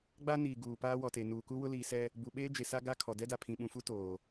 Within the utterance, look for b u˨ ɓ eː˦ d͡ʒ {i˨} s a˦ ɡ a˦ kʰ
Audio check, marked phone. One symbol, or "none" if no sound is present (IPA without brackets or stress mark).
e˨